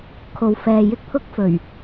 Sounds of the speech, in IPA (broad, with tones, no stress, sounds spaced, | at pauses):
kʰ o˨ w f ɛː˨ j ɪ˥ k̚ pʰ ʊ˥ k̚ f ɵ˨˩ ɥ